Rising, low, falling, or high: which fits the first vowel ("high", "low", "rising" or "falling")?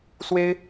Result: high